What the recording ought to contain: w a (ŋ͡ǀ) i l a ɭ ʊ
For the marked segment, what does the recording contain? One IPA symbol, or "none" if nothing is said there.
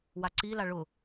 ǀ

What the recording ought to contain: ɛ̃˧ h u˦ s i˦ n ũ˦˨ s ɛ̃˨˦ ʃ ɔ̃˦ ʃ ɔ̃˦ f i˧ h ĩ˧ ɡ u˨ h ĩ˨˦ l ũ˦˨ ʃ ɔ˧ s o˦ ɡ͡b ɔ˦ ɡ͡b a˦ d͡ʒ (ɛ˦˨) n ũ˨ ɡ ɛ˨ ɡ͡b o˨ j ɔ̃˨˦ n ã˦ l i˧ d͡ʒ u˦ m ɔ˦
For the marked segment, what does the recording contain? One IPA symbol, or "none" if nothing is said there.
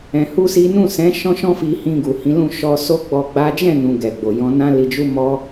ɛ̃˦˨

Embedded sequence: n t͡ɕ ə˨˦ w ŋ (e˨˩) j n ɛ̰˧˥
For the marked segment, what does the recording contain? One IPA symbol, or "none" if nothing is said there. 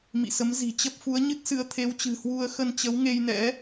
e˧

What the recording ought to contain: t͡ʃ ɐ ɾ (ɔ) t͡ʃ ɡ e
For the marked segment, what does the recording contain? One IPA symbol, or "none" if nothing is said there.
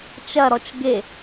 ɔ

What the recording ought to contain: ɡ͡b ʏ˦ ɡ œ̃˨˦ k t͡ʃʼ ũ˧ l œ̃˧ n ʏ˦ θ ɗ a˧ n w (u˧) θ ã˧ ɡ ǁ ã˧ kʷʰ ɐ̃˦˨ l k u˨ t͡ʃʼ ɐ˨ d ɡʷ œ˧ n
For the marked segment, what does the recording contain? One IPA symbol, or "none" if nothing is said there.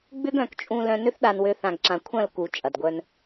ø˧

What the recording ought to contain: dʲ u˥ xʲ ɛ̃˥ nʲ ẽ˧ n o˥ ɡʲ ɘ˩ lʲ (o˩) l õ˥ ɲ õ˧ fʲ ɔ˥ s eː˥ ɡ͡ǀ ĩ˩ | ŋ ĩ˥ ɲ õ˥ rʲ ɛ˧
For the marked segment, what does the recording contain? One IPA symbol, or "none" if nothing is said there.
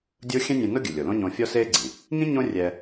o˩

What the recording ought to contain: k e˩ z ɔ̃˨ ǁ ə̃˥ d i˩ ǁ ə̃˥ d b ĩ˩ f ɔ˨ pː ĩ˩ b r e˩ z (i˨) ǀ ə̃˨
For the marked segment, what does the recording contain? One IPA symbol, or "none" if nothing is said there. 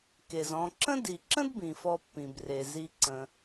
i˨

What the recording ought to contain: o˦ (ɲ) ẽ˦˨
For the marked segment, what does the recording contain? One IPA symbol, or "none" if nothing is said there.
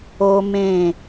m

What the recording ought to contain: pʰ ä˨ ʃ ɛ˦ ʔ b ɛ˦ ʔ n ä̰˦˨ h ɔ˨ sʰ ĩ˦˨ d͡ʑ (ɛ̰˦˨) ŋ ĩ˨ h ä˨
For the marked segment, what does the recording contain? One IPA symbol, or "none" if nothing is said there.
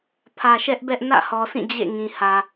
ḛ˦˨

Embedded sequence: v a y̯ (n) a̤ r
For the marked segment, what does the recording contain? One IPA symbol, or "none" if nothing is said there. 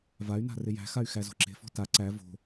n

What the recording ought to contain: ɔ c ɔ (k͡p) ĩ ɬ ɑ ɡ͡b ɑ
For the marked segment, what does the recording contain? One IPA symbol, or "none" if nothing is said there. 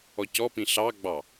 p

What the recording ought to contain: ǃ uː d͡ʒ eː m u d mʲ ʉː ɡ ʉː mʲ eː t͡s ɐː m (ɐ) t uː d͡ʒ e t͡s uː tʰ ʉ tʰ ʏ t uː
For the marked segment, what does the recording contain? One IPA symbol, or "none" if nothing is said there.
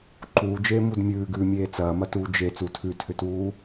ɐ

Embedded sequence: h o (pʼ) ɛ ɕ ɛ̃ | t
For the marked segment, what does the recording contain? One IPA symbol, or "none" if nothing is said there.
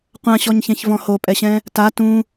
pʼ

